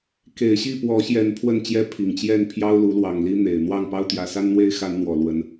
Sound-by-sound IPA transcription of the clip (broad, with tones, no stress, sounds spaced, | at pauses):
k e˨˩ ɪ̯ ɕ i˥˨ p w ɔ˨˦ ɕ j ɛ˨˦ n pʰ w ə˥˨ n t͡ɕ j ɛ˦ pʰ i˨˩ ŋ t͡ɕ j ɛ˥˨ n pʰ j ɑ˦ ʊ̯ l u˨˦ l w ɑ˨˩ ŋ l i˦ n̪ e˨˩ ɪ̯ n̪ w ɑ˥˨ ŋ p ɑ˦ ʊ̯ t̪ j ä˨˦ s a˦ n n̪ w e˦ ɪ̯ x a˨˦ n n̪ w ɔ˨˩ l w ə˦ n